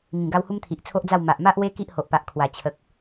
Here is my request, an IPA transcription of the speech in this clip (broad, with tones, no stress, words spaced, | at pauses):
ŋĩ˨˩ɡa˧w hu˦mt̪ʰi˨ʔt͡sʰo˦ʔd͡za˥˧w ma˨ʔma˦ʔwe˦ ki˦ʔho˨ʔpa˨ʔkʰwa˨˩ t͡ɕʰə˨k̚